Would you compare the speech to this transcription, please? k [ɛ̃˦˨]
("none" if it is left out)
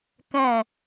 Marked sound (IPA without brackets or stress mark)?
ɛ̃˦˨